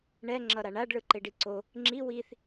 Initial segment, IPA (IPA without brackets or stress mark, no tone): ɳ